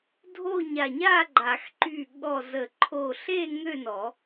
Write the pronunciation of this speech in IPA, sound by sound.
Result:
dʱ o˥˨ ɲ a˧˩ ɲ a˥˨ ɡ͡ǃ a˨˩˦ x ǃ y˧˩ ɠ ɔ˧˩ z ə˨˩˦ ǃʰ o˧˩ ɬ e˥˨ ŋ ø˥˨ n ɔ˨˩˦

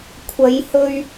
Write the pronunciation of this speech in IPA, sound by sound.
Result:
kʷʰ ɐ˨˧ j h ɵ˧ ɥ

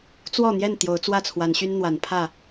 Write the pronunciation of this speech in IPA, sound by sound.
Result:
t͡s w ɔ˥˨ n̪ j ɛ˥˨ n t̪ j o˨˦ ʊ̯ t͡s w ä˥˨ t͡sʰ w a˨˦ n ɕ y˦ n n̪ w a˨˦ n pʰ ä˥˨

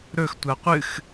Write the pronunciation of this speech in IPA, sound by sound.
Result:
ɾ ɵ x tʷ a qʷ ɨ x

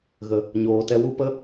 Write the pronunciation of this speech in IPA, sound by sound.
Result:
ɣ ə˨ | ɲ oː˨ t ɛ˧ w u˦ p ə˦

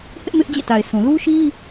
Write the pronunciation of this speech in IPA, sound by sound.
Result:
h ɪ˦ ʔ m ɪ˦ ʔ d͡ʑ ḛ˦˨ t a˨ ɪ̯ s ũ˨ l u˦ ʃ i˦

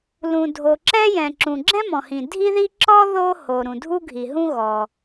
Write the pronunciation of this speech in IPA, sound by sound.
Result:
l ũ˩ dʱ o˩ ǁ ɛ˥ j ɛ̃˩ ǁ ũ˩ ɡ͡ǁ ɛ̃˥ m ɔ̃˩ h ĩ˩ dʱ i˥ ð i˥ ǁ ɔ˥ ð o˥ h o˩ ɾ ũ˩ dʱ u˥ ɡʱ i˩ ɦ ũ˥ ɣ ɔ˩

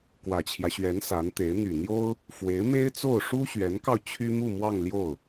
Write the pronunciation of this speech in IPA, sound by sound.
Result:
k w ä˨˩ t͡ɕʰ j ä˦ ɕ ɥ ɛ˧˥ n s a˧˥ n t̪ e˧˥ ɪ̯ n̪ y˨˩ n̪ j o˥ ʊ̯ | f w e˧˥ ɪ̯ m e˥ ɪ̯ t͡s o˥˩ ʊ̯ ʂ u˥ ɕ ɥ ɛ˧˥ n k ɑ˧ ʊ̯ t͡ɕʰ y˥ m u˥˧ m w ɑ˥˧ ŋ l j o˥˩ ʊ̯

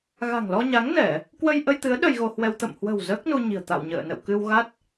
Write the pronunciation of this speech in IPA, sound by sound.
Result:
ɣ a̤˨˩ ŋ l ɔ˧ ɲ a˨˦ ŋ n ɛ˧˩˨ | k w ə˧ j ʔ ə˧ j t̪ ɨ˨˦ ə̯ ɗ ə˧ j ɣ o˧ h w ɛ˧ w t̪ ə̰˧˨ m h w ə̤˨˩ w z əː˦˥ k̚ n u˧ ɲ i̤˨˩ ə̯ t̪ a̰˧˨ w ɲ ə̰ː˧˨ n ə̰˧˨ w k ɨ˧ w ɣ a˦˥ t̚

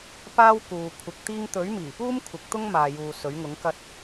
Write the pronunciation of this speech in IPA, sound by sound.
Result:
p aː˥ w k uː˨ kʷʰ ɪ˨˥ k̚ t̪ iː˥ ŋ t̪ ɵ˨˥ ɥ m iː˨˩ p uː˥ m kʷʰ ɪ˨˥ k̚ t̪ ʊ˥ ŋ m aː˨ j uː˨ s ɵ˨˥ ɥ ŋ ʊ˨˥ ŋ k ɐ˥ t̚

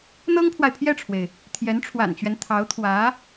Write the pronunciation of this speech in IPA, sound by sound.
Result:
n̪ ɤ˥ ŋ pʰ w a˨ ɪ̯ pʰ j ɛ˥˩ ʈ͡ʂʰ w e˩ ɪ̯ | t̪ʰ j ɛ˧˥ n ʈ͡ʂʰ w a̰˨˩ n t͡ɕ ɥ ɛ˦ n t̪ʰ ɑ˧˥ ʊ̯ t̪ʰ w ä˧˥

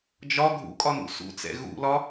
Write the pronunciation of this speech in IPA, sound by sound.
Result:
d͡ʒ ɒ ɡʱ ṵ kʼ ɒ n ṵ s ṵ t͡s ɛ̰ ɣ ṵ l ɒ

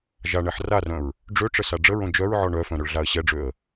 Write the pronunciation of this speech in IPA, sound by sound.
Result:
ʒ a ɳ ɛ ħ r a r œ̃ ɹ | ɖ͡ʐ ø ʈ͡ʂ ə s a ɖ͡ʐ ə ɹ õ d͡ʒ œ ɹ ʕ ɔ ɳ œ f œ̃ ɾ œ ɭ ɮ a ə̯ ɕ ɛ ɖ͡ʐ ø ə̯

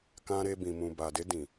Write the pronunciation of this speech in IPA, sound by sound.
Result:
k ã˧ ɾ e˧ b ĩ˨ m ũ˨ b a˨ d e˧ d ĩ˨

